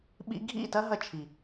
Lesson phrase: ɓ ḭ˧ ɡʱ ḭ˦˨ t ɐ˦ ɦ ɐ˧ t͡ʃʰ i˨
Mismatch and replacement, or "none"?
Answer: none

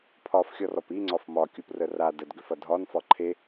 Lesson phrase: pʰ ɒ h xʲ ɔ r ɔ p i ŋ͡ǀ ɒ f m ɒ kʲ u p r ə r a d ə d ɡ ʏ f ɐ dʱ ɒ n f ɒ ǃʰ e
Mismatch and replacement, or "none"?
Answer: h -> f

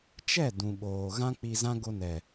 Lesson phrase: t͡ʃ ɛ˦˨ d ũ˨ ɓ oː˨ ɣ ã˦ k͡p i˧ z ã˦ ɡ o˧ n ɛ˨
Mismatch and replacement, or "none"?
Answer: none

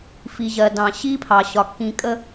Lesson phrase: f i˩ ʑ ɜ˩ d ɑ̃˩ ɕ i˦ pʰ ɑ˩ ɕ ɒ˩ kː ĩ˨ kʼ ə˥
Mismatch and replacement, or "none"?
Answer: none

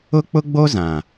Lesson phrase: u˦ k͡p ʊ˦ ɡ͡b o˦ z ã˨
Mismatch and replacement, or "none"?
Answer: u˦ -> ʊ˦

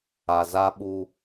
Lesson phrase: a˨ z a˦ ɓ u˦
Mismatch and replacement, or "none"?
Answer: none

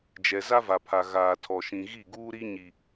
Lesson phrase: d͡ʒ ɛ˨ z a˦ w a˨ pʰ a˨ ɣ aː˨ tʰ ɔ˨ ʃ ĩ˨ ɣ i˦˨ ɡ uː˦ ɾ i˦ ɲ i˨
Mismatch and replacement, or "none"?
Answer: w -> v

